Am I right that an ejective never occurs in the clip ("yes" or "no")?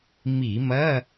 yes